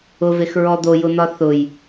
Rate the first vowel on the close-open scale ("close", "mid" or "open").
close